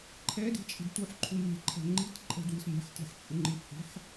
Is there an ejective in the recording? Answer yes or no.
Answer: yes